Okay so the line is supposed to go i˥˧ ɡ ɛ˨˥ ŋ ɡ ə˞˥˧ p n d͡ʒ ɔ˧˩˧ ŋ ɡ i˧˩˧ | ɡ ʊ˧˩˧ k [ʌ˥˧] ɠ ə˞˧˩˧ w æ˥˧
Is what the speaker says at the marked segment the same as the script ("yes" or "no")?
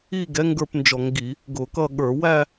yes